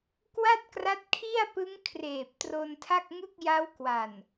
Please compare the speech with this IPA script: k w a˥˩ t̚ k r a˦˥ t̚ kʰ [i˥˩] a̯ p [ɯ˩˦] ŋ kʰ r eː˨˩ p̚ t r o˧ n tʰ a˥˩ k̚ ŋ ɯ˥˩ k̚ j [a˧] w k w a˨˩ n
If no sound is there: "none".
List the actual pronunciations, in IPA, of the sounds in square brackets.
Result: i˥˩, ɯ˦˥, a˦˥

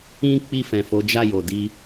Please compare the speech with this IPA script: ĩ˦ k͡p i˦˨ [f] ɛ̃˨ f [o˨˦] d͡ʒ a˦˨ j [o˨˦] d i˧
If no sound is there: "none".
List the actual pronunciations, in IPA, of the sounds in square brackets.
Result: f, o˨˦, o˨

